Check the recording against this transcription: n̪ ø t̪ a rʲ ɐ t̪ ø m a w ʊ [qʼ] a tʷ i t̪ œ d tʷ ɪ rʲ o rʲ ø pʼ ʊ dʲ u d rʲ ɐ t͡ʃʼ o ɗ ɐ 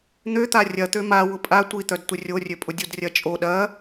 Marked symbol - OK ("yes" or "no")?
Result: no